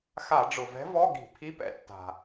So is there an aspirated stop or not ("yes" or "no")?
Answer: yes